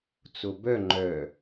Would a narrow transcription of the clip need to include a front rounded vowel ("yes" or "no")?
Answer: yes